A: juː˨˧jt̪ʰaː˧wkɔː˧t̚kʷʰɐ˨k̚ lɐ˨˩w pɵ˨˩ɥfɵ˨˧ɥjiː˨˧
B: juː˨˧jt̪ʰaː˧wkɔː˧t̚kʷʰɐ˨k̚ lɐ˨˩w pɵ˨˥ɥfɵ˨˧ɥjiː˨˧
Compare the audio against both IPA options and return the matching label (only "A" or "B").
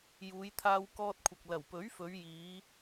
B